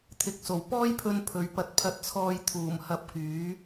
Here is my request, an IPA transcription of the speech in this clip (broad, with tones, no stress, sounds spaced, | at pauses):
t̪ʰ ɪ˨ k̚ s o˨˩ w p ɔː˥ j pʰ ɵ˧ n pʰ ɵ˨˧ ɥ p ɐ˧ t̚ pʰ ɐ˧ t̚ t͡sʰ ɔː˧ j t̪ʰ uː˨˩ m h ɐ˧ p̚ k yː˨˥